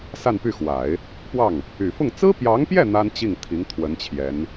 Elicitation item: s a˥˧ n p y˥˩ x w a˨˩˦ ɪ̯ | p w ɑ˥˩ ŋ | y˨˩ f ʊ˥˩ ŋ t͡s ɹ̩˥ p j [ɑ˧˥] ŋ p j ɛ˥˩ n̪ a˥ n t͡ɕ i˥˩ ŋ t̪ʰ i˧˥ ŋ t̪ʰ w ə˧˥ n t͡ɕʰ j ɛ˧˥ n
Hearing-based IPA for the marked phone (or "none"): ɑ˧˥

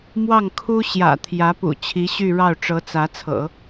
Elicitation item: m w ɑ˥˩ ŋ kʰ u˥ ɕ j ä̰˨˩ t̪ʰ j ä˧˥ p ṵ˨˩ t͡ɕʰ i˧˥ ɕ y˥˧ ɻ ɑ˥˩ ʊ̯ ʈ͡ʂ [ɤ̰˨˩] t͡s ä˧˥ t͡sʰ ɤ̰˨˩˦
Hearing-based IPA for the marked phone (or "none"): ɤ˧˥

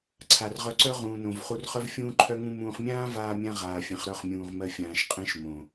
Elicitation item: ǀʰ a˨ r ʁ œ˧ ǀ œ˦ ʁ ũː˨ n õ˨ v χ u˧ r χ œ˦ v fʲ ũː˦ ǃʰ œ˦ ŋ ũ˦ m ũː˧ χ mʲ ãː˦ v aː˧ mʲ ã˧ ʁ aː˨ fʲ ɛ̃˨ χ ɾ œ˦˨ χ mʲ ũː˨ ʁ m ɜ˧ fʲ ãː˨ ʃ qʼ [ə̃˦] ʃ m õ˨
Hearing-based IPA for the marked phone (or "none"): ɛ̃˦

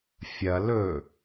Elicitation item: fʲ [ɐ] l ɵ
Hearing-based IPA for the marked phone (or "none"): ɐ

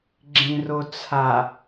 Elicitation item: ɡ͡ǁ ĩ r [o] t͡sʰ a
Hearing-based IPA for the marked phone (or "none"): o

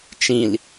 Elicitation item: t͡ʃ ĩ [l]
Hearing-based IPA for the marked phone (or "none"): l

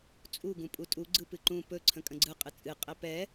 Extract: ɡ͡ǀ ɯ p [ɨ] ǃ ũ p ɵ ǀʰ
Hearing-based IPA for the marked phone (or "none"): ɨ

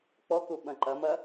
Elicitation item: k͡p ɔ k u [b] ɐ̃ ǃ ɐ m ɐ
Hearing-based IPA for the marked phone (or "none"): ɓ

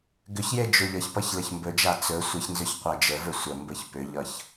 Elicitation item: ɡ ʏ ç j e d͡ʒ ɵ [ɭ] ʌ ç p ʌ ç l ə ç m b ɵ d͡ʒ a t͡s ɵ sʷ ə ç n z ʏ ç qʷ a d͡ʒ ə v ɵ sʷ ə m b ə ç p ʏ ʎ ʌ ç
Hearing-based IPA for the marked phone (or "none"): ʎ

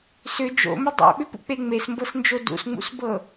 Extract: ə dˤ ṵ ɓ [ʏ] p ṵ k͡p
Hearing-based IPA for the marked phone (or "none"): ʏ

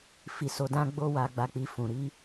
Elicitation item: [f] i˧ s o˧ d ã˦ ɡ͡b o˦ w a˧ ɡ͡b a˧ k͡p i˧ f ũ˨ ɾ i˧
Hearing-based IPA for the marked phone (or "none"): f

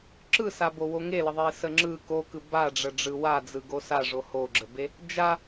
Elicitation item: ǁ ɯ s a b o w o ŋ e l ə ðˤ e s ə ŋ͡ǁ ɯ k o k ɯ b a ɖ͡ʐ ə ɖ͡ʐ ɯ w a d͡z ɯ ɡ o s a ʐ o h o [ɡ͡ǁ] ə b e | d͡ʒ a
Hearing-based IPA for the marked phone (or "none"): ɡ͡ǁ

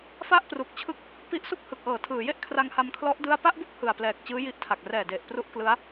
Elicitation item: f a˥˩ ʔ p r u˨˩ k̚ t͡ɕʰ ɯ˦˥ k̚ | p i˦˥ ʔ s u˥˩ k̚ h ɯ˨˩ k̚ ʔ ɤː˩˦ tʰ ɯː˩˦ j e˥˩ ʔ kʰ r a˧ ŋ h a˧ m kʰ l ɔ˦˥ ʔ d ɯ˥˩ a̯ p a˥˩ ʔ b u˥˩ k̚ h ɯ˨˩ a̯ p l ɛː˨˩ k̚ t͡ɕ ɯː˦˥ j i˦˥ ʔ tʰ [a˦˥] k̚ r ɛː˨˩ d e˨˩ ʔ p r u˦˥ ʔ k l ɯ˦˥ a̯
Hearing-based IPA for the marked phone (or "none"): a˨˩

